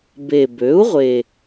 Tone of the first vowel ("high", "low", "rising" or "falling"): low